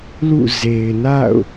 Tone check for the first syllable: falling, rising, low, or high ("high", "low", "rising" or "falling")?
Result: falling